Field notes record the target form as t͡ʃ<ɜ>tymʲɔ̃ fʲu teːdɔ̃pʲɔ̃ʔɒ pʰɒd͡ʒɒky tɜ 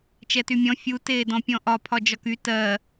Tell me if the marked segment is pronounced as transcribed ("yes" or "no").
no